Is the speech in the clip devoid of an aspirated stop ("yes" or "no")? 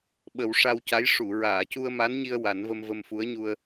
yes